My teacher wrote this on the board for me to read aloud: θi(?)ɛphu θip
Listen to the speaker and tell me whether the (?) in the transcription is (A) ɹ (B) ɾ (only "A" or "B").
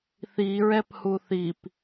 A